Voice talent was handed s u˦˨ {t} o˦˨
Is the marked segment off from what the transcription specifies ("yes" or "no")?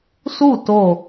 no